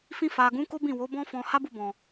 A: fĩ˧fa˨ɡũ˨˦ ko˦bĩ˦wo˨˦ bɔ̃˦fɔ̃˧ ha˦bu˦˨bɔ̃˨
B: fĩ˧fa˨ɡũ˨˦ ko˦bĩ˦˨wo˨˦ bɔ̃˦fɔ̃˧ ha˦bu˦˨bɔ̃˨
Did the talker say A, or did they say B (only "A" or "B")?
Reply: B